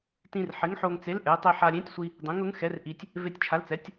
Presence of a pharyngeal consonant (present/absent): present